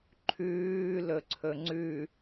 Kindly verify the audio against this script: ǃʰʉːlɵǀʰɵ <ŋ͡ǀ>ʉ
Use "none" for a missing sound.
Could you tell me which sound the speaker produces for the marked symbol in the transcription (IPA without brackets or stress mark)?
ŋ͡ǀ